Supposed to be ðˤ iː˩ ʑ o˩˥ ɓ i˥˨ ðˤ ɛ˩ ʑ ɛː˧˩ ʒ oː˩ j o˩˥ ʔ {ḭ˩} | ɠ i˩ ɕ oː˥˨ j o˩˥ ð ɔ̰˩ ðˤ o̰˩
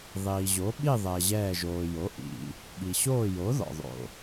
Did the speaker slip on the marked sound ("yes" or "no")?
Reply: no